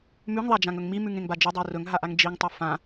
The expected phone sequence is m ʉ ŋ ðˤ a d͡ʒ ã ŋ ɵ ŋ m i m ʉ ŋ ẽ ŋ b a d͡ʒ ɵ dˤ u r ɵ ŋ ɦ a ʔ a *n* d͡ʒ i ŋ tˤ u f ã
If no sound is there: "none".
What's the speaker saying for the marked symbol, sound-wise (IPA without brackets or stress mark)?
ŋ